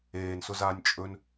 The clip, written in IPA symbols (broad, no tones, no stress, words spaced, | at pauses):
eːnsʊzaːnʲ t͡ʃʼɵn